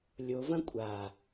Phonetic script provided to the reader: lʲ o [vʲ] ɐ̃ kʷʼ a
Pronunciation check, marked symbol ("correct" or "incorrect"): incorrect